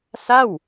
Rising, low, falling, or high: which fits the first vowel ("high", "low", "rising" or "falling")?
falling